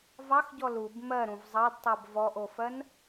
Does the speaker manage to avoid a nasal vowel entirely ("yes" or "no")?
no